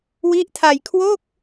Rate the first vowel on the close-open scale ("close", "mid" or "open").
close